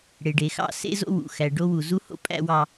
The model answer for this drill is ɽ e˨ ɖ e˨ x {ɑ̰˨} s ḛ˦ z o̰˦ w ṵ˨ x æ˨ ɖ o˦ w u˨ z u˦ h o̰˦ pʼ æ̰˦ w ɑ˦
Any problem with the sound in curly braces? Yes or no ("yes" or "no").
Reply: yes